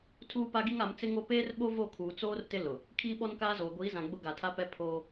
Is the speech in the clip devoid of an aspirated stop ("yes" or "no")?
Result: no